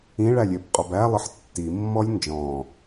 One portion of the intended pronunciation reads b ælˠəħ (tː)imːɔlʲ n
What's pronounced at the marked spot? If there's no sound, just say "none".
tː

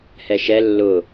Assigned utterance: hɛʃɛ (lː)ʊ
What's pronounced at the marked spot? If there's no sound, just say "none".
lː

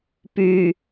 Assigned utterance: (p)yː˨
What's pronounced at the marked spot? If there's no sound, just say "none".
p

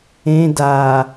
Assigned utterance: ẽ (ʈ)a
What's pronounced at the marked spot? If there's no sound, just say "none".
d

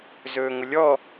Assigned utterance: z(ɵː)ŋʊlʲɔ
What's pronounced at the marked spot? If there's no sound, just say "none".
ɵː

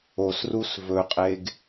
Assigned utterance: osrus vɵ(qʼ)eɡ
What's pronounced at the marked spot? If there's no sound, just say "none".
qʼ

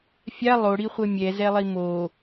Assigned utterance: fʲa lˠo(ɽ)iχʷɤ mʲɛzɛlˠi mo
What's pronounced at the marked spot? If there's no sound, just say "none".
ɽ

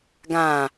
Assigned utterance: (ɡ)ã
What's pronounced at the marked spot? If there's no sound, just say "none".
ɡ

